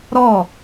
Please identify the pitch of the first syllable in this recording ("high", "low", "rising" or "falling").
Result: falling